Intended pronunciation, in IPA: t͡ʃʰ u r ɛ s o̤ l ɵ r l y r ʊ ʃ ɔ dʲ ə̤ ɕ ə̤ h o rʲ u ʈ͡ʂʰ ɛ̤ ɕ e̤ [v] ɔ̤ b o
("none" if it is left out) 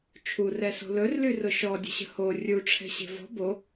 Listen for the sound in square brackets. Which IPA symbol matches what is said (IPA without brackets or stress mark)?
v